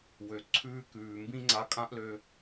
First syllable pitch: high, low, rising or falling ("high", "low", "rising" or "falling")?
low